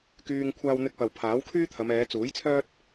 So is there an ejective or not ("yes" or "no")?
no